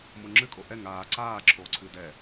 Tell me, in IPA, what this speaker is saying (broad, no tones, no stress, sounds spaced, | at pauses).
m o ŋ͡ǁ ɨ kʼ o ʔ ɛ ŋ aː ǀ aː ǁʰ oː ǀʰ ɨː d ɛ